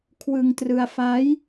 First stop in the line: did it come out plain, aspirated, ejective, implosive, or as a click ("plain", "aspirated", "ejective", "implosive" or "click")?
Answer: aspirated